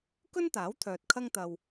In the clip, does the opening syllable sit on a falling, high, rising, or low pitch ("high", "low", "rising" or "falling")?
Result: high